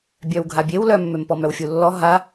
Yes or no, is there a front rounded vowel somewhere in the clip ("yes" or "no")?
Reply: yes